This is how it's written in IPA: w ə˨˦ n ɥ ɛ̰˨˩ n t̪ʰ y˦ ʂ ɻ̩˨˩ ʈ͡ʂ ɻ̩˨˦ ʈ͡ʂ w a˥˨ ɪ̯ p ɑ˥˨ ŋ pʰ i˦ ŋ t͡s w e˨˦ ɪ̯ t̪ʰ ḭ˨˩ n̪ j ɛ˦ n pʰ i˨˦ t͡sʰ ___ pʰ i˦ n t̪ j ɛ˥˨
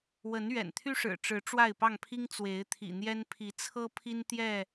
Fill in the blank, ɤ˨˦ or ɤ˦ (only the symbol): ɤ˦